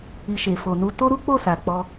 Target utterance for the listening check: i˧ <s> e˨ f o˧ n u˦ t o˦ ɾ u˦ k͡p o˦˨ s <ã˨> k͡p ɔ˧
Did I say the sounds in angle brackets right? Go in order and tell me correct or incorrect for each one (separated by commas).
incorrect, incorrect